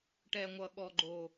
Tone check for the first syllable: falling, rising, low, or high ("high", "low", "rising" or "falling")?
low